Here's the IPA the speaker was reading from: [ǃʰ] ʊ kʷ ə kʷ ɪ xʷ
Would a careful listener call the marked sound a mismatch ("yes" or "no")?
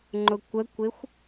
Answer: yes